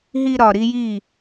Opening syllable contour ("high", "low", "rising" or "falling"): high